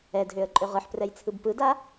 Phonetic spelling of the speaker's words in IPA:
ɛ d ɦ ø ə̯ ǃʼ ø ʁ ɯ ħ p r ɛ j t͡sʰ ɯ b p ɯ d a

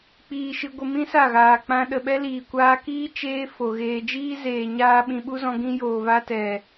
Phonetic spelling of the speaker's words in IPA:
k͡p iː˧ ʃ ɨ˧ ɡʷ ə˧ m ĩ˦ s a˦˨ ɣ aː˨ k͡p ã˦ ɗ ə˨ ɓ ɛ˧ l iː˨ kʷ aː˧ k iː˦ t͡ʃ eː˦ f o˨ ɣ eː˧ d͡ʒ iː˦ z eː˨ ɲ aː˧ ɓ ĩ˨ ɓ u˦ z ɔ̃˧ ɡ ĩ˧ j oː˨ v a˧ t ɛ˨

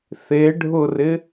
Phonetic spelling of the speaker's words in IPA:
θ e ɖʱ ʊ r ɪ

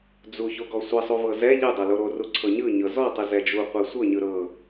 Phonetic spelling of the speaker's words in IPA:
d͡z u ç o ɡ ɔ sʷ ɛ sˤ u v ɤ z ɛ ʎ ɯ dˤ ɤ l o ɾ o r u ǀʰ ɤ ɲ ɯ ɲ ɤ z ɔ tˤ ɯ z ɛ d͡ʒ u qʷ ɛ sʷ ɤ ɲ ɯ ɾ ɤ

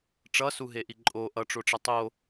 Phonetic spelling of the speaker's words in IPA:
ʈ͡ʂ ʌ s u ɦ e ʔ i ǃʼ o ʔ ʌ ʈ͡ʂ o ʈ͡ʂ ʌ tˤ o

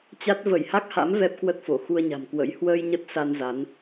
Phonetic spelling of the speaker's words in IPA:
t͡ɕ a˦˥ t̚ v ə˧˩ j h a˦˥ k̚ h a̰˧˥ m v ɛ˦˥ p̚ k w ə˦˥ t̚ f o˧˩ x u˧ ə̯ ɲ a̤˨˩ m k w ə̰˧˥ j h w əː˧ j ɲ ə˦˥ t̚ s a˧ n z a˨˦ n

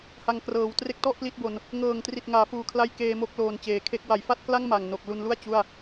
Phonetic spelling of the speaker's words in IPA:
h a˧ ŋ k r ɤː˨˩ w t r e˥˩ k̚ t ɔ˥˩ ʔ p l i˦˥ t̚ b o˧ n | ŋ ɤː˨˩ ŋ t r i˨˩ t̚ ŋ aː˩˦ f uː˨˩ kʰ l a˦˥ j k eː˧ m o˦˥ k̚ l oː˧ n t͡ɕ eː˨˩ kʰ e˥˩ k̚ w a˩˦ j f a˥˩ t̚ k l a˥˩ ŋ m a˨˩ ŋ n o˨˩ k̚ l u˧ n l u˥˩ a̯ t͡ɕ u˥˩ a̯

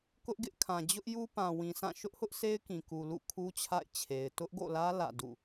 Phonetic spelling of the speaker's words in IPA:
k ʊ˦ ʔ ɡ ɪ˦ ʔ kʰ ã˨ d͡ʑ ʊ˦ ʔ j u˦ p ã˨ w ĩ˨ sʰ ã˦˨ ʃ ʊ˦ ʔ h ʊ˦ ʔ sʰ e˦ ɪ̯ k ĩ˨ k u˨ l ṵ˦˨ kʰ u˦ t͡ɕʰ a̰˦˨ ɪ̯ t͡ɕʰ e˨ ɪ̯ t ʊ˦ ʔ ɡ o̰˦˨ l ä˦ l ä̰˦˨ d ṵ˦˨

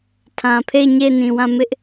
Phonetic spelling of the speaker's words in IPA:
tʰ ã˨ pʰ e˦˨ ɪ̯ ɲ e˦˨ ɪ̯ n ĩ˨ w ã˦˨ m ɪ˦ ʔ

